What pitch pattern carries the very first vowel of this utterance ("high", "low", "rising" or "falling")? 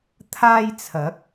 high